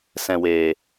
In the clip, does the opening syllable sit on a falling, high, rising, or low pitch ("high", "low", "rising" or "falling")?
low